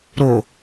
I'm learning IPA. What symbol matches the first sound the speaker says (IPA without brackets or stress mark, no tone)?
ɾ